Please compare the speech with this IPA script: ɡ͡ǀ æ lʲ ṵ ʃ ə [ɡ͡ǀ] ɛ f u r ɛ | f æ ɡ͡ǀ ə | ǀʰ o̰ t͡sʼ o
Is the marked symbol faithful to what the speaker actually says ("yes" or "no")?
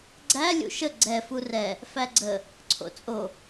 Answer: yes